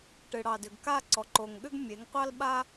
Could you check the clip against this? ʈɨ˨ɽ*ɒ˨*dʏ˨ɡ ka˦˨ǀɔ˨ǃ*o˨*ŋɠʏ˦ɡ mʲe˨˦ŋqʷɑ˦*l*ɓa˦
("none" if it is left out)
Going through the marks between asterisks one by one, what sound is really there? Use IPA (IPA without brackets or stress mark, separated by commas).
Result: ɑ˨, o˨, l